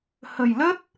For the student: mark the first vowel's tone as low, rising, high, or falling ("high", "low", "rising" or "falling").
low